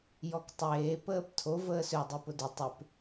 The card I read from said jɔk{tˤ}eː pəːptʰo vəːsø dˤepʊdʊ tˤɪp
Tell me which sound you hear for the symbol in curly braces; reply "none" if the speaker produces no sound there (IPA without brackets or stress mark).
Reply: tˤ